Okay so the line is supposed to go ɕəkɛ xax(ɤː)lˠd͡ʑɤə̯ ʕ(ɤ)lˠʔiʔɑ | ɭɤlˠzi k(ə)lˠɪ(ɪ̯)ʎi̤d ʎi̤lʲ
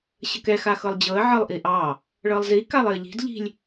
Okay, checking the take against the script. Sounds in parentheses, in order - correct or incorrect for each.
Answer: incorrect: ɤ, correct, incorrect: a, incorrect: ə̯

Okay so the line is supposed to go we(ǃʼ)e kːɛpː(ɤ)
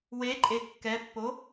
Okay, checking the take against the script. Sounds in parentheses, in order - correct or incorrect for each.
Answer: correct, incorrect: o

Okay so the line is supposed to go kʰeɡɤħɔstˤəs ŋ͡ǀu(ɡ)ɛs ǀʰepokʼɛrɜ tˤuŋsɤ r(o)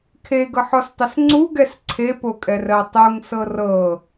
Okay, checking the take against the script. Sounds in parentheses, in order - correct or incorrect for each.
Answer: correct, incorrect: ɤ

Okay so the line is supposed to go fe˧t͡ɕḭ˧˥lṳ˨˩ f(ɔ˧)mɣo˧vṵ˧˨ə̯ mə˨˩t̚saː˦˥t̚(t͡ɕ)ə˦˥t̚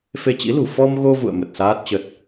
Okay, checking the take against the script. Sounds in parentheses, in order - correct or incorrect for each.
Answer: correct, correct

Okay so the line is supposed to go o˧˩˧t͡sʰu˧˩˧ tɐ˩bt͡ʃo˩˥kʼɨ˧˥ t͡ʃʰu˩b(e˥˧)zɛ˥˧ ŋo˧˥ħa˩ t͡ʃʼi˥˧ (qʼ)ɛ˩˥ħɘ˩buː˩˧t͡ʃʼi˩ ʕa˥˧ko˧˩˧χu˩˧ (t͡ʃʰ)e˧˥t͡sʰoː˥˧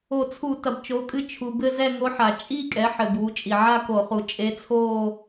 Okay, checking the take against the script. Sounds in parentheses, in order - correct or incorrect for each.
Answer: incorrect: ɘ˥˧, incorrect: kʼ, incorrect: t͡ʃʼ

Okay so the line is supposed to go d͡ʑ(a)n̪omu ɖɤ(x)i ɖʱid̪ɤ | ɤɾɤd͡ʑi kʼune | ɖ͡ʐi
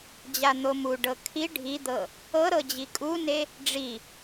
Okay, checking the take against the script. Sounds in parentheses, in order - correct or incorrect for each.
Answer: correct, incorrect: kʰ

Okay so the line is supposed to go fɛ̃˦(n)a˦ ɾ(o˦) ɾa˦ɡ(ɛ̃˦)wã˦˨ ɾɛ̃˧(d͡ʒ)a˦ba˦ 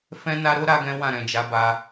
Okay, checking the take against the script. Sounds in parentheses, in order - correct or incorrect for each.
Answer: correct, correct, correct, correct

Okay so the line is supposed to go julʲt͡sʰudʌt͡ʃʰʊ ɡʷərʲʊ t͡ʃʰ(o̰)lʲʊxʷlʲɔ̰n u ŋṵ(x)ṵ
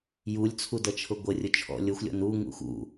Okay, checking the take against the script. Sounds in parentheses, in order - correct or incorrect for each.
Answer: incorrect: ɔ̰, correct

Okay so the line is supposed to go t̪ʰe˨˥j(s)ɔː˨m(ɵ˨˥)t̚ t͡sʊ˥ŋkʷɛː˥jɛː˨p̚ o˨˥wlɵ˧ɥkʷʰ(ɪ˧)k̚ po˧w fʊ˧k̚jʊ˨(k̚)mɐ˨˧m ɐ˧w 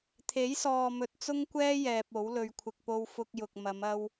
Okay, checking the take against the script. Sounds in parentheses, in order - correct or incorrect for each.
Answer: correct, incorrect: ɵ˨, correct, correct

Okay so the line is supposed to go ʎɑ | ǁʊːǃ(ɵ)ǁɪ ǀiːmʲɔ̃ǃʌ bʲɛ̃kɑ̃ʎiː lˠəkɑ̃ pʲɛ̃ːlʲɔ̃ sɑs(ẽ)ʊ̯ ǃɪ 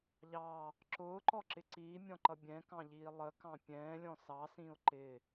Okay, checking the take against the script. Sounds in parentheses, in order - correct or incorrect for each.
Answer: incorrect: ɔ, incorrect: ĩ

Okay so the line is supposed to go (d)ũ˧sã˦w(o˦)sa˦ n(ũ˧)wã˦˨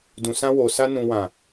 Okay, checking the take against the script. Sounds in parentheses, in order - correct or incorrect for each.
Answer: correct, incorrect: o˧, incorrect: ũ˦

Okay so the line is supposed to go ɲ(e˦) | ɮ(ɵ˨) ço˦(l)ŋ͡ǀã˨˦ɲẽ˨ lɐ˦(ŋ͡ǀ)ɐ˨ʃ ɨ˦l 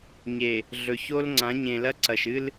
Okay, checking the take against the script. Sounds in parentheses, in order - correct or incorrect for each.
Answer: incorrect: e˨, correct, correct, incorrect: ǀ

